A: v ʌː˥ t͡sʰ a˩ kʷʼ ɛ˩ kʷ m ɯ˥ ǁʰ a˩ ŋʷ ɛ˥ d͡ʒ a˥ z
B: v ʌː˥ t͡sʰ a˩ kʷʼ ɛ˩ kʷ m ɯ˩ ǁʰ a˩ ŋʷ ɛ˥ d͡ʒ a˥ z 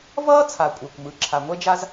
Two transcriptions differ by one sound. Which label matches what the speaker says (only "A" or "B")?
B